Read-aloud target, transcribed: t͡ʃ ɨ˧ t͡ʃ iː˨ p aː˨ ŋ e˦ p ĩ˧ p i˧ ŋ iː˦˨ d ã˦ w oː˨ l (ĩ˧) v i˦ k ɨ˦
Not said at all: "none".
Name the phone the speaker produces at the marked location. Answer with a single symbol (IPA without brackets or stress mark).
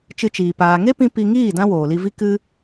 i˧